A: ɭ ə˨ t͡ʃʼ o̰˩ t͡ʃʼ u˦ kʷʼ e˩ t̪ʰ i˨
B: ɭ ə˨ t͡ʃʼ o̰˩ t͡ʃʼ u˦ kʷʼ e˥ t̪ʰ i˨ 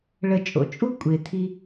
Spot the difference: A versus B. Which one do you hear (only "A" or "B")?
A